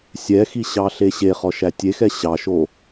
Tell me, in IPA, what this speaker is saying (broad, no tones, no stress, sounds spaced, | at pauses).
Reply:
sʲ ɛ x i ɕ ɑ ɬ e ɕ e χ ɔ ʃ æ tʲ e x ɛ ɕ ɑ ʃ o